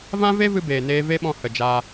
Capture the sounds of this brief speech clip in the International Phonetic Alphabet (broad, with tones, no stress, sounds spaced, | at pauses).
v ã˦ v e˦ v ɨ˧ b eː˨ n eː˧ v e˦ ɓ ɔ̃˧ h ə˨ d͡ʒ aː˧